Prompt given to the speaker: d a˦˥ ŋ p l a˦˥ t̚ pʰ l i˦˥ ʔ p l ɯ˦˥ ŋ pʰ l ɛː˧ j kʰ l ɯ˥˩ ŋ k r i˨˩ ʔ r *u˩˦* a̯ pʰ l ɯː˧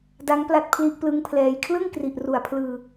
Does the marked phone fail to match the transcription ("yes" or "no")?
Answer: no